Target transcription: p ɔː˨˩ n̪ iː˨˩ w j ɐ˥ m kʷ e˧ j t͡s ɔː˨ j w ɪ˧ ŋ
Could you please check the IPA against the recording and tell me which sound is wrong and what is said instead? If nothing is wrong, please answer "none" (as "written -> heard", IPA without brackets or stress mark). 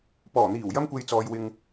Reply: none